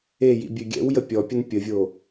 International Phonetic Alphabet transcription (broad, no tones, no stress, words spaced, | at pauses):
ejḭ bʲøɡʲɛ̰wjə pʲɔpʲən pʲəvʲo